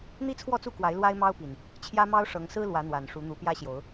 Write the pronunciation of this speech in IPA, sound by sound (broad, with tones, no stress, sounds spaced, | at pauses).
n̪ i˦ t͡sʰ w ɔ˥˨ t͡s u˥˨ k w a˨˦ ɪ̯ l w a˦ ɪ̯ m ɑ˦ ʊ̯ p i˨˩ n | t͡ɕʰ j ä˦ m ɑ˦ ʊ̯ ʂ ɤ˨˦ ŋ s ɹ̩˦ l w ä˨˦ n̪ w a˨˩ n ʂ u˨˦ n̪ u˨˦ p j ä˦ ɕ j o˨˦ ʊ̯